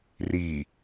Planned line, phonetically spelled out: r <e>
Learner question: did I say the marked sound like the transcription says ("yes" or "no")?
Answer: no